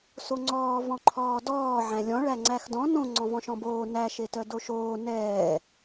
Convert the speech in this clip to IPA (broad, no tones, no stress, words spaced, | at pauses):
soŋ͡ǀɔː vɔ̃ǃʰɔːdɔː ʕæ̃lʲɔ̃ ɭæŋ͡ǀæxdɔ̃ nõ ŋ͡ǀɔ̃vɔ̃ʃɔ̃boː næ ʃetœdoʃoː nɛː